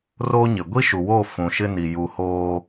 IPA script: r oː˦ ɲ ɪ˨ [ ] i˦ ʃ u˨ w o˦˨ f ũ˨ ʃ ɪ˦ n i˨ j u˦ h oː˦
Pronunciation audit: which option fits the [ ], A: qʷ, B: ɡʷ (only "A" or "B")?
B